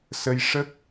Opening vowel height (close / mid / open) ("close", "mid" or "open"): mid